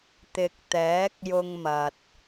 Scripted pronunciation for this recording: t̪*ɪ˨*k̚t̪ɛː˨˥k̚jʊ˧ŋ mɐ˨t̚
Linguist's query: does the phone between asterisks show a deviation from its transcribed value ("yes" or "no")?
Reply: no